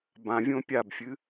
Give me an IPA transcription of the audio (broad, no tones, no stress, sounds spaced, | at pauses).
b ã vʲ õ pʲ a b fʲ ɨ